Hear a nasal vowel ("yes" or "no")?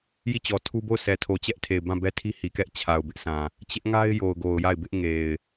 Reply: yes